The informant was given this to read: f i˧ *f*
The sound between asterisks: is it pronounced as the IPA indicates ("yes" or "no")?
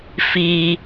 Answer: no